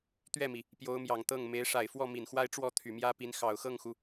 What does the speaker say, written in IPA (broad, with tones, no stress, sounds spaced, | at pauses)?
t̪ ɥ ɛ˥˩ m i˩ | p j o˧˥ ʊ̯ m j ɑ˨˩ ŋ t̪ ɤ˥˩ ŋ m e˧˥ ɪ̯ ʂ a˨˩ ɪ̯ f w ɔ˥˩ m i˨˩ n x w a˥ ɪ̯ ʈ͡ʂ w ɔ˥˩ t̪ʰ y˨˩ m j ä˥ p i˧˥ n x ɑ˨˩ ʊ̯ x ɤ˥˩ ŋ x u˩